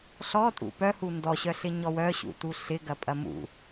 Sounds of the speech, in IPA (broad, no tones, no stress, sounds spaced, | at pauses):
ɬ ɔ tʼ ṵ p œ h u n d ɔ ɕ œ ɬ ɪ ɲ ɔ w œ ɕ ṵ t u ɬ ɪ ɡ ɐ pʼ ɐ m ṵ